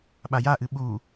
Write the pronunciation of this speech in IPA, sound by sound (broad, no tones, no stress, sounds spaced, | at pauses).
ɓ a j a ʔ ɨ ɓ u